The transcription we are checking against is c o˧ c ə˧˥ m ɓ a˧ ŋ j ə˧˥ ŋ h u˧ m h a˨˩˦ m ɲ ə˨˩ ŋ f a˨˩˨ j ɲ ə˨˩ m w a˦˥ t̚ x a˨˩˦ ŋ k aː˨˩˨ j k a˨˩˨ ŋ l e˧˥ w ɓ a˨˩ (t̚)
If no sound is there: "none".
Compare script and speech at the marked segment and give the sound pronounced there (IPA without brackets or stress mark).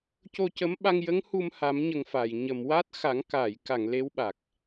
k̚